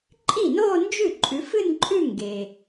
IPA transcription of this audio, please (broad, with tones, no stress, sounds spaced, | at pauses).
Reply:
ǃʼ i˥˩ n oː˥˧ n d͡ʒ ʉ˥˩ ǃʼ ʉ˨˦ f ɨ˥˧ n ǃʼ ʉ˥˧ ŋ ɡ e˨